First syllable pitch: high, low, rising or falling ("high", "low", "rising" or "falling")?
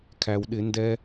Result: low